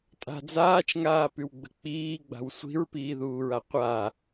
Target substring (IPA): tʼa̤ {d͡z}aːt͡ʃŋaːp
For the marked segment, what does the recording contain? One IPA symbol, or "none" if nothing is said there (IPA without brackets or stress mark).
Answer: d͡z